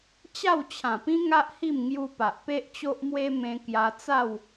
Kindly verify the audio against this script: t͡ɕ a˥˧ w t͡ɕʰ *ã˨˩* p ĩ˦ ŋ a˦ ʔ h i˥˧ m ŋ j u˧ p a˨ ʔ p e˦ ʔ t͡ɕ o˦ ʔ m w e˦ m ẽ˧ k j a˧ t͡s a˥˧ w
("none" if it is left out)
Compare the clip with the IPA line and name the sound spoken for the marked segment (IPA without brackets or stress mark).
ã˨˩